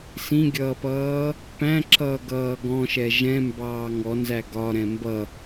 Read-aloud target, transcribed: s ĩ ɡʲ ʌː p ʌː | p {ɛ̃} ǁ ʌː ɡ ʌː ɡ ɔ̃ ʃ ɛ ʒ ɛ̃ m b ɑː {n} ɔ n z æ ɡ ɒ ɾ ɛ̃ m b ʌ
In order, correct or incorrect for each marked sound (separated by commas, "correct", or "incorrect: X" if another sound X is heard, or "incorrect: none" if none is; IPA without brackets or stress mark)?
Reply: incorrect: æ̃, incorrect: ŋ